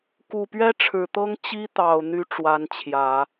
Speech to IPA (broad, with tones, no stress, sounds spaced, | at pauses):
k u˨˩ p ɥ ɛ˥ ʈ͡ʂʰ ɻ̩˨˩ t̪ ɤ˥ ŋ t͡ɕ i˥ t̪ ɑ˨˩ ʊ̯ n̪ y˥ ʈ͡ʂ w a˧˥ n t͡ɕʰ j ä˨˩˦